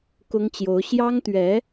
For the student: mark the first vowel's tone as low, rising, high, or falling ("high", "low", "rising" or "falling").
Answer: high